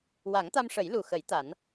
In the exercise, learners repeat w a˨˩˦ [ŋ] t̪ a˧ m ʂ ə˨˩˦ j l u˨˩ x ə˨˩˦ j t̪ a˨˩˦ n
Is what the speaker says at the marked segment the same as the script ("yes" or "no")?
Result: yes